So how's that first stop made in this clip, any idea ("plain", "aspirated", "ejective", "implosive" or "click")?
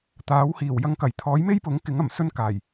plain